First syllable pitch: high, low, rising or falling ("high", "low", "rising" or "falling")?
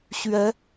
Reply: rising